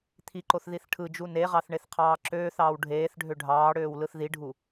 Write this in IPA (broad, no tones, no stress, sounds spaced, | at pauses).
t̪ʰ i ǃ o θ ð i θ ʈʰ ɯ d͡ʒ u n e ʁ ɑ θ ɳ e θ qʰ ɑː ǁ øː θ ɑː w ɖʱ eː θ ɖʱ ø ɖʱ ɑː ɽ øː w l ɯ θ ð i ɖʱ u